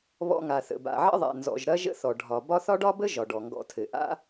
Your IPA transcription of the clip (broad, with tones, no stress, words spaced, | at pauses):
βɔ̰˨ŋa˩θə̰˩ ba̰˩ʕə̰˦ðˤa̰˩ nzɔ̰˨ʒɾɐ˥ ʒə̰˦θɔ˩ ɖʱɒ˩ bɒ˦θɒ˥ɖɒ˥bə˥ ʒɒ˩ɖɔ˩ŋɡɔ̰˨tʰɘ˩ ʔa̰˦